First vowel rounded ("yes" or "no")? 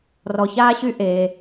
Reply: yes